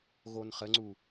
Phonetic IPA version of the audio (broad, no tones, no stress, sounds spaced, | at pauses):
ɣ o n χ ə ŋ͡ǀ u